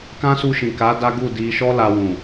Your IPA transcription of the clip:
kã˦su˧ʃĩ˨ka˨˦ da˦ɡu˦˨ di˧ʃɔ˦ la˧wũ˨

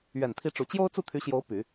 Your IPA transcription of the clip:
ɥɛ˨˩nt̪ʰi˧˥ʈ͡ʂu˨˩ t͡ɕjo˥ʊ̯t͡su˥˩t̪ʰy˧˥ɕjo˧˥ʊ̯ py˨˩˦

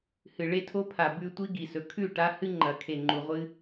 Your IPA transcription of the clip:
hɨ˨ɭe˦tʰo˦pʰa˨ bʉ˦tʷi˦ɡi˨sɵ˨ kʰʉ˦˨ ʈa˦hɨ˦ŋ͡ǃɐ˨˦ kʰe˨ŋ͡ǃu˨ʁʷɨ˦

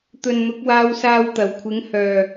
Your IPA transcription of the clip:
t̪ɵ˨nn̪ʊ˨˥k̚ waː˧wsaː˧wt̪ɐ˨˩wkʷʰɪ˨˥ŋ hœː˨˩

